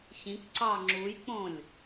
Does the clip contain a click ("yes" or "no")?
yes